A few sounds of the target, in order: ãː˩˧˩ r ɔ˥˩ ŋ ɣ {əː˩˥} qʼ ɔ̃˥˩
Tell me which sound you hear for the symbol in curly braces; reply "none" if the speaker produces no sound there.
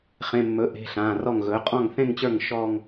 ɵː˩˥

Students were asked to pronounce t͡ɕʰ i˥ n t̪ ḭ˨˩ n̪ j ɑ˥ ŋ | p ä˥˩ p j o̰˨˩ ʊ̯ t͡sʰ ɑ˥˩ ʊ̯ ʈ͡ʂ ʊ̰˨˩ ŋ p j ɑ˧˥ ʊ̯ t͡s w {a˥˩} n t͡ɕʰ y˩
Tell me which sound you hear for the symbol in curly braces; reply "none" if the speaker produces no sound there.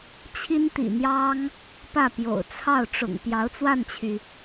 a˥˩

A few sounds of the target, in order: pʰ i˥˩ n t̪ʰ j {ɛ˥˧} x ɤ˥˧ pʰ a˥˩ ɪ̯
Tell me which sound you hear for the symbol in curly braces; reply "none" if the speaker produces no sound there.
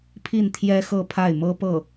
ɛ˥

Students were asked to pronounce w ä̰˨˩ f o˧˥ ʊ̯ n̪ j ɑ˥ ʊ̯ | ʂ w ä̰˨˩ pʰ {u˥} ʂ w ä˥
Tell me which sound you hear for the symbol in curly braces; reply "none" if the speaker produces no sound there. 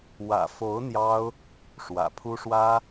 u˥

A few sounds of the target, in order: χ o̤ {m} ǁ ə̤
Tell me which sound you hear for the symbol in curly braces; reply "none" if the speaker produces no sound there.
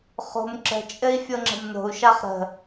m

